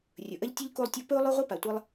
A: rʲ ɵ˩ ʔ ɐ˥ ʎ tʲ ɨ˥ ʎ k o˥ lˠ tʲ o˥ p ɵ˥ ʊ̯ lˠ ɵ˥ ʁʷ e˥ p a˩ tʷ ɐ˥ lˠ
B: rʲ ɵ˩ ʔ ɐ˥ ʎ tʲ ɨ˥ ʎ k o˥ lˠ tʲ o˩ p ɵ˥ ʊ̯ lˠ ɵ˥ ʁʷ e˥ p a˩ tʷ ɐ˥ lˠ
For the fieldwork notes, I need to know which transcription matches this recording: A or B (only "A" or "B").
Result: A